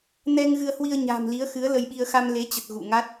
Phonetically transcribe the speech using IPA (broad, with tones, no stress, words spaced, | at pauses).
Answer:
nɛ˧ŋɣɨ˧ə̯hwi˧ə̯ɲa̤ː˨˩m li˨˦ə̯xɨ˨˦ə̯lə˧jɓi˧ə̯ xa˧mle˨˦t͡ɕə˨˩t̚ ɣṵ˧˨ŋa˦˥t̚